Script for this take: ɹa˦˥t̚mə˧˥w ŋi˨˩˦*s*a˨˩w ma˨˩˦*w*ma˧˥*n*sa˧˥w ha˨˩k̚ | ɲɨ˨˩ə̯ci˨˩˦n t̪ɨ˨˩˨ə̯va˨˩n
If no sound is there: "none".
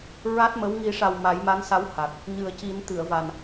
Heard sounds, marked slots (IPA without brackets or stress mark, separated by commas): ʂ, j, n